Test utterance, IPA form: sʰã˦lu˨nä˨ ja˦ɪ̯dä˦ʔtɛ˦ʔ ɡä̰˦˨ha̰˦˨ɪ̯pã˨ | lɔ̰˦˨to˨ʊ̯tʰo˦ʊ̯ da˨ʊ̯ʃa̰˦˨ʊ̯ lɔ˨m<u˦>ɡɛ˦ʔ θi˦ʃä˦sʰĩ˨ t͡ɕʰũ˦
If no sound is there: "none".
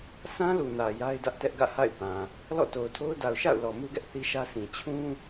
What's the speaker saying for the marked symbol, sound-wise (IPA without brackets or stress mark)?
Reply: u˦